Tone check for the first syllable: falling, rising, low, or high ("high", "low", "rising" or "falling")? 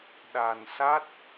low